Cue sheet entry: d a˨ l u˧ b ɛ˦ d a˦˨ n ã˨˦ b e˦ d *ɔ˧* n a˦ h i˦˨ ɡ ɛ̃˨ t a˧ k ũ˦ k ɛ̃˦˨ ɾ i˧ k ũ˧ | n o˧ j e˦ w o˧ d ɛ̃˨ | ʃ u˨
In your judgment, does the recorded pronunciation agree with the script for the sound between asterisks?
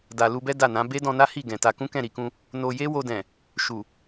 no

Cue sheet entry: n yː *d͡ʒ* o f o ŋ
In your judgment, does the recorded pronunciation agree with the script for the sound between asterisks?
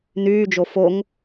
yes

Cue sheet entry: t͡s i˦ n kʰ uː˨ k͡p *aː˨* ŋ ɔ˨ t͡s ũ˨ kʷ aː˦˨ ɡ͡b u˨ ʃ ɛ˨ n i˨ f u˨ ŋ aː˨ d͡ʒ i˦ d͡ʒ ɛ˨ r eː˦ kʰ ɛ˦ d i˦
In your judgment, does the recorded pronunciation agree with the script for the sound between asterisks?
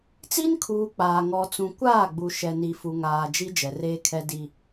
yes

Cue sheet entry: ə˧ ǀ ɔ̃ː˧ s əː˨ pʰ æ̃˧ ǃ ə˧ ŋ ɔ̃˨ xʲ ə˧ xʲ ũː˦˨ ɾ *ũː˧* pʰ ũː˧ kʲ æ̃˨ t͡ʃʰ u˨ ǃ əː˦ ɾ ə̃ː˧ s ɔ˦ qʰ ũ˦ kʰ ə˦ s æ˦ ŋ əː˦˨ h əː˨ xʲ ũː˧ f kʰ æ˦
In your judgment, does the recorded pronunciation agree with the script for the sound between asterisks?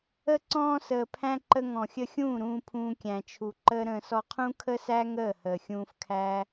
yes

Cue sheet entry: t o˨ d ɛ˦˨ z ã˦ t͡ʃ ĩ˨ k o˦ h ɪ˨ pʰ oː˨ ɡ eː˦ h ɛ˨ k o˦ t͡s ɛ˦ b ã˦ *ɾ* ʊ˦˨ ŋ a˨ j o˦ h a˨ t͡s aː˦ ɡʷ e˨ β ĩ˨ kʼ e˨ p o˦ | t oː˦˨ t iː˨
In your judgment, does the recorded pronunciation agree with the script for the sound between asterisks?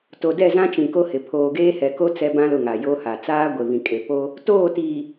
no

